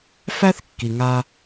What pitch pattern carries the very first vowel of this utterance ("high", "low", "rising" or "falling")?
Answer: high